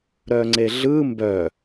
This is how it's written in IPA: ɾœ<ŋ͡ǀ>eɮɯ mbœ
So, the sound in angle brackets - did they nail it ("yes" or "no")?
yes